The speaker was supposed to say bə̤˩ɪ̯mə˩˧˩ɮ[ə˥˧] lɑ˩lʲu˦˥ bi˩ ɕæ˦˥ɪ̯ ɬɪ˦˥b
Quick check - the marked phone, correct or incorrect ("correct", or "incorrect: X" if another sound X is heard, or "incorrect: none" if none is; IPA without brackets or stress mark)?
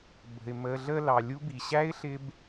correct